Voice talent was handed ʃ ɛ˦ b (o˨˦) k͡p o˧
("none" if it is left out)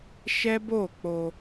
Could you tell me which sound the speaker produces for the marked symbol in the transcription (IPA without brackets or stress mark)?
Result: o˦˨